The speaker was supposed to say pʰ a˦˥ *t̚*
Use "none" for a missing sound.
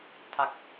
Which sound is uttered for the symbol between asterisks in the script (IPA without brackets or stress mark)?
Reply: k̚